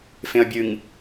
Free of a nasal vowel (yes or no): no